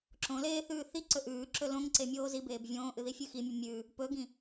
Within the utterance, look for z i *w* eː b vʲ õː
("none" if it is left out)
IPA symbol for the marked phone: b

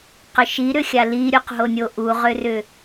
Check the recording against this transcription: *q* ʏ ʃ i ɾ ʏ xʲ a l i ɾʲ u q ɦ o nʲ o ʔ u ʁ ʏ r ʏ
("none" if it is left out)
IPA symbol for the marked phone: q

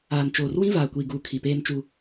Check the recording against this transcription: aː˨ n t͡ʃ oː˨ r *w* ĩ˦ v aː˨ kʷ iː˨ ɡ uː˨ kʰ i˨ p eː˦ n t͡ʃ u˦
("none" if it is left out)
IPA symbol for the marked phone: w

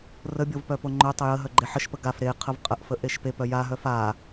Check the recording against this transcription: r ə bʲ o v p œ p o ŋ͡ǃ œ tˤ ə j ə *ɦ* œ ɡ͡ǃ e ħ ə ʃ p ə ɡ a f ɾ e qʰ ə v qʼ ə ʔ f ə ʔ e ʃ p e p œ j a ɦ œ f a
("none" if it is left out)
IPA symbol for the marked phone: ɦ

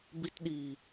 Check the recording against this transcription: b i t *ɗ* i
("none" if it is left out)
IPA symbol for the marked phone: ɗ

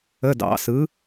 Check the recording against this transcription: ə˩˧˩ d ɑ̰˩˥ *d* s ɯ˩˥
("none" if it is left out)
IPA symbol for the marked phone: none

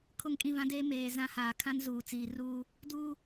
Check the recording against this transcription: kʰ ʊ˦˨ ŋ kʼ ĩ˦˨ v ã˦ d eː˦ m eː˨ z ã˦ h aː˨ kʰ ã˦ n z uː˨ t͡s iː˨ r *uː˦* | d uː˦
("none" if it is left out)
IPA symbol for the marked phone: uː˦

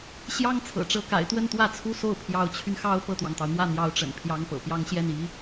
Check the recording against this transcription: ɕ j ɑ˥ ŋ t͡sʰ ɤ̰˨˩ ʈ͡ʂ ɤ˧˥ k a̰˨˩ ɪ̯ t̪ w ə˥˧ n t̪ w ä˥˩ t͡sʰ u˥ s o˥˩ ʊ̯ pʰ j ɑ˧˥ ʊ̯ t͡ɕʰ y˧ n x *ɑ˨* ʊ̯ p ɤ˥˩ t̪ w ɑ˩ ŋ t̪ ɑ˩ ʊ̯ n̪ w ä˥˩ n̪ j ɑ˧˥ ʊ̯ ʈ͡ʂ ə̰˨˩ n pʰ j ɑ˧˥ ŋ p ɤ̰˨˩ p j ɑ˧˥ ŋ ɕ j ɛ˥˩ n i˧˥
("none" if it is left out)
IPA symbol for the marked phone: ɑ˥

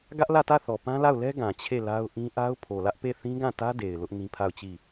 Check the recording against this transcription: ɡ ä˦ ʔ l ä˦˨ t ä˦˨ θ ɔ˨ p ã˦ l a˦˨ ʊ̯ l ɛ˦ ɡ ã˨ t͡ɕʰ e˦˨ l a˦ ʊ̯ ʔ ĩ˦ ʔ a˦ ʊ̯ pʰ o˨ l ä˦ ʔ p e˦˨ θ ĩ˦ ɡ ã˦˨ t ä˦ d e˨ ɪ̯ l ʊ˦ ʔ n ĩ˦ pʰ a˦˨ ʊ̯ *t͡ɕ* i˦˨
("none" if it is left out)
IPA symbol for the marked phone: t͡ɕ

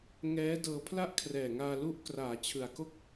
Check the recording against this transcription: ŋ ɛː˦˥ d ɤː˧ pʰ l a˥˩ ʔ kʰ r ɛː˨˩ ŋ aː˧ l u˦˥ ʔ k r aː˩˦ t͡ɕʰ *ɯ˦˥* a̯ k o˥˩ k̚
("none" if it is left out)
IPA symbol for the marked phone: ɯ˨˩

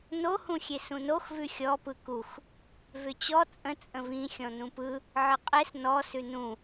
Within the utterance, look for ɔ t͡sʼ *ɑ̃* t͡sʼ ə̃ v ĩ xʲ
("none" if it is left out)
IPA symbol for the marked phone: ə̃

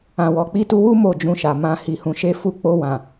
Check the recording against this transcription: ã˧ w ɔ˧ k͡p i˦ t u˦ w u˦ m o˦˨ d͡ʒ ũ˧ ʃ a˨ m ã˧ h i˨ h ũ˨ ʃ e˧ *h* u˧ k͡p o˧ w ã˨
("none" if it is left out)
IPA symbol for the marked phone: f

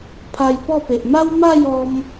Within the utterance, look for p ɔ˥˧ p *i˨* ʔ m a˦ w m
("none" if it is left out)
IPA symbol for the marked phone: e˨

